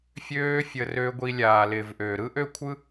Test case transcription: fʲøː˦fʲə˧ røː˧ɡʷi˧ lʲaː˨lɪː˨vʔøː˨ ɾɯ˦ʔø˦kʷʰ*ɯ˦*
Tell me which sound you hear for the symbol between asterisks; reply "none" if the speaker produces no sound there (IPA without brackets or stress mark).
ɯ˦